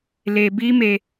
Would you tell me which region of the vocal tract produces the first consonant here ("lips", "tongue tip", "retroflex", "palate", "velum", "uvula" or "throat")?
tongue tip